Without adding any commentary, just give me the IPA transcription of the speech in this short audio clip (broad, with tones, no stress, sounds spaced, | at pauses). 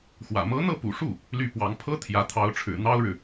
x w ä̰˨˩ m ɤ˧˥ n̪ ɤ˥˩ p ṵ˨˩ ʂ u˥˩ | l y˥˩ p w ɑ˧˥ ŋ pʰ ɤ˥ t̪ʰ j ä˧˥ t̪ʰ ɑ˧˥ ʊ̯ ʈ͡ʂʰ ɻ̩˨˩ n̪ ɑ˥ ʊ̯ ɻ ɻ̩˨